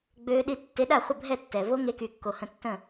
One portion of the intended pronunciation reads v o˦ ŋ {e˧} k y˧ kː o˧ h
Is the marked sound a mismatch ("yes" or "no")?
yes